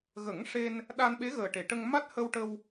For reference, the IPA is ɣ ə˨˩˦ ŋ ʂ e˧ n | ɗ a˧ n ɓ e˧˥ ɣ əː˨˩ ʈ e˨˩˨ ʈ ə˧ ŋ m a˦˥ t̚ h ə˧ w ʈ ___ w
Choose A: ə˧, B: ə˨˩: A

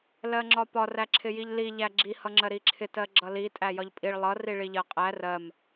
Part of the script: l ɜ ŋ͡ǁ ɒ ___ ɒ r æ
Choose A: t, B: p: B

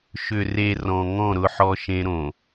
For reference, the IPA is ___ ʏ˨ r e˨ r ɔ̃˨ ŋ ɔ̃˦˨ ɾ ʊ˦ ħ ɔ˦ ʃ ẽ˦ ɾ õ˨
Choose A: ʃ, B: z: A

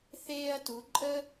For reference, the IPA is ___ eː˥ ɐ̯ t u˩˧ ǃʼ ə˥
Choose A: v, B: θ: B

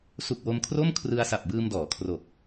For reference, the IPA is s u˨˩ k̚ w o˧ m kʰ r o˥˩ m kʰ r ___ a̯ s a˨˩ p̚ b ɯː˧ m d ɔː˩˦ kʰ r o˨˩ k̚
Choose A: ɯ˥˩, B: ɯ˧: B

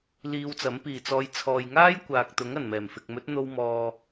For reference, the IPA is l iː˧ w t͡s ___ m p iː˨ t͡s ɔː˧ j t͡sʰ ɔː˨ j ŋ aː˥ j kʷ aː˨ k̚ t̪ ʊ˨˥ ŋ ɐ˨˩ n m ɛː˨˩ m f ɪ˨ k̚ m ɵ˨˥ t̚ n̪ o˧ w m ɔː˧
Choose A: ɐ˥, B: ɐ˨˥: B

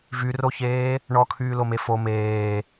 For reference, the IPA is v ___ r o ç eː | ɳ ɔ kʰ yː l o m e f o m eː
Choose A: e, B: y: B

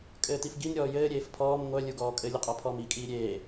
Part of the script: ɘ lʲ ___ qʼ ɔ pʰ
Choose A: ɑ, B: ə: B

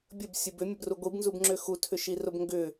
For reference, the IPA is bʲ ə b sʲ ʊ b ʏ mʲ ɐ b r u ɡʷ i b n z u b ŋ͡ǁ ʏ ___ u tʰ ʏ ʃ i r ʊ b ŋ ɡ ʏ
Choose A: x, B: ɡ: A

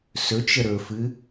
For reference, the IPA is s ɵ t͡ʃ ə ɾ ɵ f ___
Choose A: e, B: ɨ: B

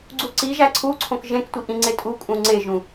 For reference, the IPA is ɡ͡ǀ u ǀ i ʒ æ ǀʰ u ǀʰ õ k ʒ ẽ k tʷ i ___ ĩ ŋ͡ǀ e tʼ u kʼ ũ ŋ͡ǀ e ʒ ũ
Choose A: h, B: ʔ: B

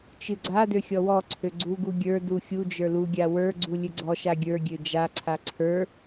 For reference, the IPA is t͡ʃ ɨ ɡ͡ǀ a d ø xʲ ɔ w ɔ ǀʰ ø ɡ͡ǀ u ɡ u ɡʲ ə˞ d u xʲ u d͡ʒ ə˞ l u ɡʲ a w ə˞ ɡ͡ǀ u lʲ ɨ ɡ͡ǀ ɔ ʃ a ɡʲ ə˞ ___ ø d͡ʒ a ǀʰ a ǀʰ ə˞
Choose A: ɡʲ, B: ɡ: A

